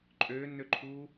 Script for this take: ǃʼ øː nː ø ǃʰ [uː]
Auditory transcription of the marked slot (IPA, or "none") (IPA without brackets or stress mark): uː